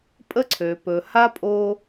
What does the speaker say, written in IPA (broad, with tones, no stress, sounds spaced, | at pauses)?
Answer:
pʼ ə˦ ǀʰ ø˨ p ɵ˨ h a˦ pʼ o˦